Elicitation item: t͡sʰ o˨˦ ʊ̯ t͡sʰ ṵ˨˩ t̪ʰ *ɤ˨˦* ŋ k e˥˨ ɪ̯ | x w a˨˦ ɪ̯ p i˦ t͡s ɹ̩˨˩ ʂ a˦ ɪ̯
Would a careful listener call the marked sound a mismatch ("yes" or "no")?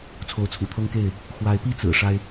yes